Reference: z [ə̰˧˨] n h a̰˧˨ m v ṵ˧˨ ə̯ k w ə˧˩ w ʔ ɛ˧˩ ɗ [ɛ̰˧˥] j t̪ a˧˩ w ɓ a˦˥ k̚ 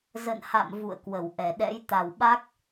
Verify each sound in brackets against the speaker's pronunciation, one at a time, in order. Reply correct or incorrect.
correct, correct

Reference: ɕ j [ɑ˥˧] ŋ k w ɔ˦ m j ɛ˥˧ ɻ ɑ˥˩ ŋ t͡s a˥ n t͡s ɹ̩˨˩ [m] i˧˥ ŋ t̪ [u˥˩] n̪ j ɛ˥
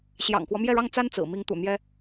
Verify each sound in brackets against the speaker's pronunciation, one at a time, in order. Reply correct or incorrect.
incorrect: ɑ̰˨˩, correct, incorrect: ṵ˨˩

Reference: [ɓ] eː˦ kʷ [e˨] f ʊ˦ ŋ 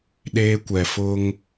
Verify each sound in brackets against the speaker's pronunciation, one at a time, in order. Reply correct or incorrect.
incorrect: ɗ, incorrect: ɛ˨

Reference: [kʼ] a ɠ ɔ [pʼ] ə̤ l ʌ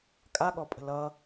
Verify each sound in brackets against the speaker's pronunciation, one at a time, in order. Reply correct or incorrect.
correct, correct

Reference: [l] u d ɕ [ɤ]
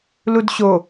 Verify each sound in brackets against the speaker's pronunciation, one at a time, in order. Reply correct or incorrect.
correct, incorrect: o

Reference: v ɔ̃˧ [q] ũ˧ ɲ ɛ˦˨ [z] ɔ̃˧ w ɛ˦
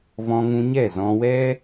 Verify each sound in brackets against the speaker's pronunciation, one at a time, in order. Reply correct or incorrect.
incorrect: ŋ, correct

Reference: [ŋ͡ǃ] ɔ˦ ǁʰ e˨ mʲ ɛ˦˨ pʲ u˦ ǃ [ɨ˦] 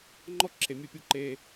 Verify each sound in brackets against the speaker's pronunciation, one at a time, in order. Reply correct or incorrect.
correct, incorrect: e˦

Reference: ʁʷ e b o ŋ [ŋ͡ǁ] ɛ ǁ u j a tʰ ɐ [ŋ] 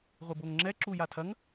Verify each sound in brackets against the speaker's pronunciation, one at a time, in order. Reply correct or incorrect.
correct, correct

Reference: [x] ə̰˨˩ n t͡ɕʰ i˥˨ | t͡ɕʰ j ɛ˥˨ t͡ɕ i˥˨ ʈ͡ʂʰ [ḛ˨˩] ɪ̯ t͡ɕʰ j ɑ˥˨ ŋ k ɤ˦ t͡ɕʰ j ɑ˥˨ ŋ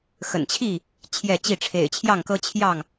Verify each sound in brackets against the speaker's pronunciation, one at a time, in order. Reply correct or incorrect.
correct, correct

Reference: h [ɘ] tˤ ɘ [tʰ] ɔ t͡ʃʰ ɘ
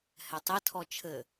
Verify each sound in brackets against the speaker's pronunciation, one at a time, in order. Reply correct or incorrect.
incorrect: ɛ, correct

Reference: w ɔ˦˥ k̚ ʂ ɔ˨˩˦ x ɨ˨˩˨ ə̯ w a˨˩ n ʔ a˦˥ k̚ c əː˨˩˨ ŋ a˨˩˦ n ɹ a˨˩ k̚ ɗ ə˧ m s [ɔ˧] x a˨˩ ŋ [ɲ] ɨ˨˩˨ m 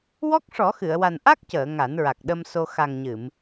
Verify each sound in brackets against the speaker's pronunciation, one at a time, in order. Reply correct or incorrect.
incorrect: o˧, correct

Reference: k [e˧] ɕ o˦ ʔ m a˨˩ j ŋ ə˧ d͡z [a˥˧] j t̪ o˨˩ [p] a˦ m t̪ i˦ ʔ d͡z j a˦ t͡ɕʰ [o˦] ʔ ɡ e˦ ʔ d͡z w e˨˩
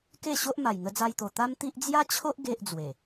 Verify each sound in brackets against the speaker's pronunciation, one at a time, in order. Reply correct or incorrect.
incorrect: e˥˧, incorrect: a˧, incorrect: t̪, correct

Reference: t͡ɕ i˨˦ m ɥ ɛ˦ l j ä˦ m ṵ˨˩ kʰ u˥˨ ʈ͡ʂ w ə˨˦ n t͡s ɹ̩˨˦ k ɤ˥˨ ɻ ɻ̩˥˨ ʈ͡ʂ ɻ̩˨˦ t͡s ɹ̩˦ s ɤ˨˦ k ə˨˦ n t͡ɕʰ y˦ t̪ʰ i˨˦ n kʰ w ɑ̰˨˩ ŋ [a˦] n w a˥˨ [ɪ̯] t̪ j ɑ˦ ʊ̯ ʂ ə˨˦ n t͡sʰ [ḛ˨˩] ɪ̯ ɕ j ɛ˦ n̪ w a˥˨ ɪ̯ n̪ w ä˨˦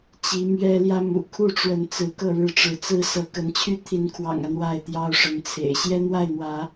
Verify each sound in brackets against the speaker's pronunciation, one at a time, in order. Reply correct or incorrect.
correct, correct, correct

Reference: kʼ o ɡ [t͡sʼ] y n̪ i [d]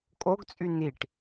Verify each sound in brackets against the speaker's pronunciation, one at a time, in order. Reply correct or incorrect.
correct, incorrect: ʈ

